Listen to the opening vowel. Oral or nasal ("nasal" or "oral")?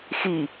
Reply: oral